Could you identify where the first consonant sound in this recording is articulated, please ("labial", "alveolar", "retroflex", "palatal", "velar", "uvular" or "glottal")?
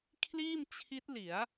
velar